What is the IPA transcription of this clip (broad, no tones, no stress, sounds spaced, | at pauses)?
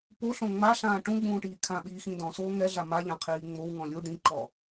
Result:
p o ɬ õ ŋ͡m a ɬ ãː ʈ ũ ɡ͡b ũː ʈ iː kʰ ã ɓ iː x ĩ d ɔ̃ s oː ŋ ɛ ɮ a m a ʎ ã qʰ iː ŋ͡m o w ŋ ɔ̃ lʲ u ɖ ĩ ǃ ɔ